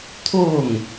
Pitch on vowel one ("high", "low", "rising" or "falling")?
falling